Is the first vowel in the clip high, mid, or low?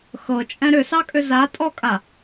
mid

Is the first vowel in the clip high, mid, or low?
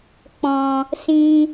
mid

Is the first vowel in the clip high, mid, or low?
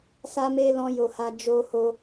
low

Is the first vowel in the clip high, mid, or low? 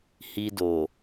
high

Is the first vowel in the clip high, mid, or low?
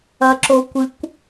low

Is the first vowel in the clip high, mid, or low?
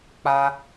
low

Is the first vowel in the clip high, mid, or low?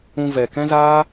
high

